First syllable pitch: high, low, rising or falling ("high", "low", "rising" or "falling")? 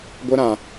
high